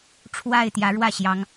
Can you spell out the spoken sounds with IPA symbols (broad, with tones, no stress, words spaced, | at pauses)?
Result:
ʈ͡ʂʰwa˥˩ɪ̯t̪jä˧˥ɻwä˥˩ɕjɑ˧˥ŋ